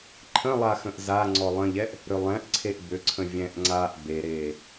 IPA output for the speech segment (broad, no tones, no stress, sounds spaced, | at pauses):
ǃʰ ə̃ lˠ a x ə̃ ʔ z a ŋ͡ǀ ɔ lˠ ə̃ ʎ ɛ ʔ | ɾ ʏ lˠ ɛ̃ ʔ ǀʰ e ʔ b ʏ ǀʰ ə̃ vʲ ɛ̃ ʔ ŋ͡ǀ a ʔ b e ɾ eː